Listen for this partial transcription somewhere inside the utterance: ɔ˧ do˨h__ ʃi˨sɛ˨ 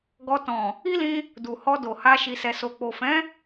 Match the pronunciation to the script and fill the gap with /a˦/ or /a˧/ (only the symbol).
a˧